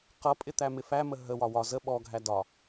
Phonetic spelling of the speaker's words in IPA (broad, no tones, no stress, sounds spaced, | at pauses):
q ʌ pʼ ɪ t̪ æ m ɪ f æ m ə ɦ ə w ɒ w ɒ z ə ɓ ɔ ɡʱ æ d ɒ